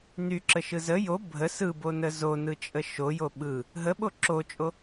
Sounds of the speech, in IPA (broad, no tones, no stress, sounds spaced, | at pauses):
n y ǁ ə ʃ ɯ z ə j o bʱ ə s ɯ b o n ə z o n ɯ t͡ʃʼ ə ʃ o j o ɓ ɯ | ɦ ə ɓ o ǁ o t͡ʃʼ o